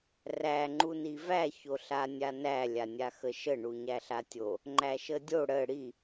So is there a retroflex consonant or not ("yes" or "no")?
yes